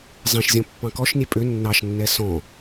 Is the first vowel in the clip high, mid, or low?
mid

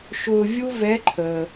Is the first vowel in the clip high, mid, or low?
high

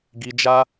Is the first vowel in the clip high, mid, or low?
high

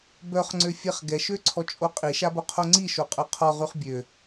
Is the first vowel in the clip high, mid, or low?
mid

